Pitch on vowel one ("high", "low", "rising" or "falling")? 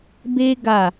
high